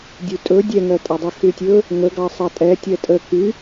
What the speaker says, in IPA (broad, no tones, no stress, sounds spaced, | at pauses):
dʲ u tʼ ɵ dʲ ɛ ŋ ɜ tʼ ɑ dˤ e x y tʲ ɵ | ŋ ə ɡ ɑ sˤ ɑ tʼ ɛ tʲ ɜ tʼ ə k y